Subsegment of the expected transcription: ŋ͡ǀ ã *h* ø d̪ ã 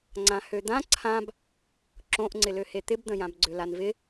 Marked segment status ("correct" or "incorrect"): correct